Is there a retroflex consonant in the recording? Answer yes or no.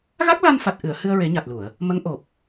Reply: no